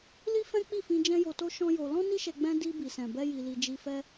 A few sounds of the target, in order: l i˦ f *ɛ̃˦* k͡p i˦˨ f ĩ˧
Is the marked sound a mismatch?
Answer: no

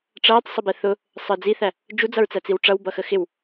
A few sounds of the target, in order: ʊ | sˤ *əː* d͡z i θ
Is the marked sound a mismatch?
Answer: no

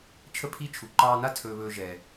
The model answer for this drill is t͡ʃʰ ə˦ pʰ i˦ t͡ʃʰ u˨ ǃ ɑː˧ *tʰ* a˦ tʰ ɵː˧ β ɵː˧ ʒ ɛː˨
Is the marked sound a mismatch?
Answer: yes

